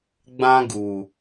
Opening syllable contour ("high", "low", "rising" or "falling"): high